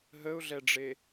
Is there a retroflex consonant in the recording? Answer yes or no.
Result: yes